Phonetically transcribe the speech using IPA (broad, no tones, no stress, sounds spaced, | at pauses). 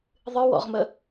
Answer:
ðˤ ɨ w ɔ̰ ʁ m ə